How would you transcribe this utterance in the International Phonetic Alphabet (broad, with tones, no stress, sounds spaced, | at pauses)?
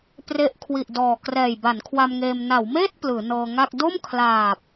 p r e˦˥ ʔ kʰ w i˨˩ ʔ d ɔː˨˩ k r ɛː˨˩ j b a˩˦ n kʰ w a˧ m ŋ eː˧ m n a˩˦ w m eː˥˩ t̚ p l ɯː˩˦ n ɤː˧ ŋ a˥˩ k̚ d o˥˩ m kʰ l aː˨˩ p̚